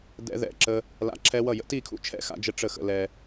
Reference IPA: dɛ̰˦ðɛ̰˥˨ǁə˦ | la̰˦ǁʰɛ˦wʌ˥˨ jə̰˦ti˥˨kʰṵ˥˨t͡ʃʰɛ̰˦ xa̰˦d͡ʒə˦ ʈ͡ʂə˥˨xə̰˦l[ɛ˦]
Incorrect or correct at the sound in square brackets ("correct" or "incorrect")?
correct